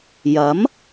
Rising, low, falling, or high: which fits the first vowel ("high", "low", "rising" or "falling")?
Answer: rising